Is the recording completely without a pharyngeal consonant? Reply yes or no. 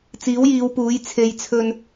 yes